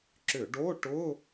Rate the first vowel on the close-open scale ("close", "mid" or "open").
close